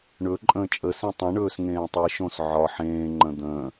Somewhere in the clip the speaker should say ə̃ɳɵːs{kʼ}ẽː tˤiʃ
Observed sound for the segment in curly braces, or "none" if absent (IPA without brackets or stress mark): ŋ